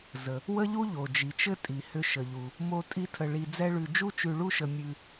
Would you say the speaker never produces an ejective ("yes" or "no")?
no